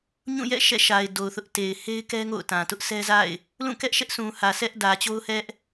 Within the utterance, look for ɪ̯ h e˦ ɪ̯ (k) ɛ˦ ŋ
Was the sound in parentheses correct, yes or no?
yes